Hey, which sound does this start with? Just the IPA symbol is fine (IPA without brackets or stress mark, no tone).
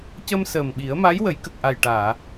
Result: c